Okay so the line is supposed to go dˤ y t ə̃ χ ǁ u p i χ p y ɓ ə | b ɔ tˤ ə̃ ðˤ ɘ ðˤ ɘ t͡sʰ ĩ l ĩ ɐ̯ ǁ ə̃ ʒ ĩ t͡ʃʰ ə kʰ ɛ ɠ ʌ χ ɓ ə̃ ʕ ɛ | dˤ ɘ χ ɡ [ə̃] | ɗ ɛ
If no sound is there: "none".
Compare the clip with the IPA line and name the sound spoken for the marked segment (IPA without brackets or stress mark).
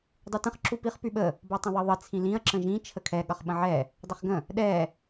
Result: ə̃